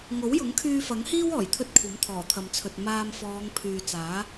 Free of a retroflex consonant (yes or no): yes